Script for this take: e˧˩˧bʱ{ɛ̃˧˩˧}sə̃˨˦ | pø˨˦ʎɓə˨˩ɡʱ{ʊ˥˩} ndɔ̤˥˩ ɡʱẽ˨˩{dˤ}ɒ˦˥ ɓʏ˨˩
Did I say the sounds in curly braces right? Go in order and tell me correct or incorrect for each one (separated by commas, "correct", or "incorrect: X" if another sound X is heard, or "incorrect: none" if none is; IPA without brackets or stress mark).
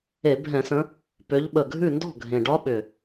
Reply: correct, incorrect: ʉ˥˩, incorrect: ɖ